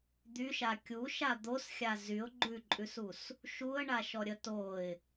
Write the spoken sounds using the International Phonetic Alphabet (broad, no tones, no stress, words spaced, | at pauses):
d̪yʃa kʲuʃa d̪osxʲa zyʊ̯ ɡ͡ǃʉǃʼʉsus | ʃuə̯ɳaʃɔɾʲə toɪ̯